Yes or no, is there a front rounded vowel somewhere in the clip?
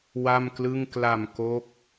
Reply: no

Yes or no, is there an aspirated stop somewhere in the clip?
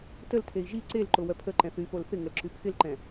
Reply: yes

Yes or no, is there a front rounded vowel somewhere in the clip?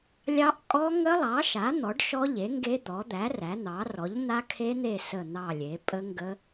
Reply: no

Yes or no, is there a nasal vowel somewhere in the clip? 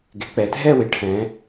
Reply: yes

